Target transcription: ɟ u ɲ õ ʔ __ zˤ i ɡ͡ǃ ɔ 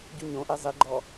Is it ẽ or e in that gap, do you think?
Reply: e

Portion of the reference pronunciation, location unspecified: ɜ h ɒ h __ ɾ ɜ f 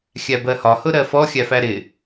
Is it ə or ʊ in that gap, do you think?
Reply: ʊ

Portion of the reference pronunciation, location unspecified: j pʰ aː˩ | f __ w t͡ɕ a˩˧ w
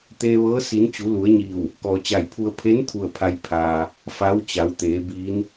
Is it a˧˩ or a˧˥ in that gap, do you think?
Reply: a˧˥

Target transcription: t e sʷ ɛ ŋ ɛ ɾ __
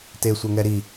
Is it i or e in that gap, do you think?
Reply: i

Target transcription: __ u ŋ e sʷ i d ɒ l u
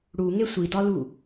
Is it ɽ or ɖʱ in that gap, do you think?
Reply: ɽ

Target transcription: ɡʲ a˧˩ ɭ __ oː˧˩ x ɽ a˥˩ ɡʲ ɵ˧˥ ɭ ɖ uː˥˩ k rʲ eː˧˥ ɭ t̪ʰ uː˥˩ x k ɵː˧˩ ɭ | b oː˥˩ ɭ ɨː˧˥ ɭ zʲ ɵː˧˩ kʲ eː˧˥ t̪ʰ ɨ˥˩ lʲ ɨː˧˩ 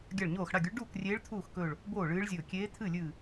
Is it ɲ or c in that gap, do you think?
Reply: ɲ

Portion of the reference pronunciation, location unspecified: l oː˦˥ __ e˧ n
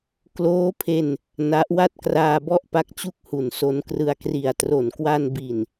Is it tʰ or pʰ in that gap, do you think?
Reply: pʰ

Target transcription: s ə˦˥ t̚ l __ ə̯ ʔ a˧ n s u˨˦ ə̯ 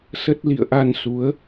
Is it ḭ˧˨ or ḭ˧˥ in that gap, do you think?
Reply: ḭ˧˨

